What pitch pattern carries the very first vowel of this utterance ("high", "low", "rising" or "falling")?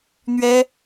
high